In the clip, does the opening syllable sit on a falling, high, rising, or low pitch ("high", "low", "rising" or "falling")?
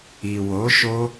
low